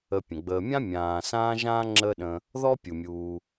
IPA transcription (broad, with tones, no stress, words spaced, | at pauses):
ə˨pʲə̃˩ɡ͡bəː˨mʲã˥ mʲãː˨sãː˥ʒãː˥ ŋ͡ǁəː˦ɗə̃˨ | ðɔ˥ pʲu˩mʲuː˨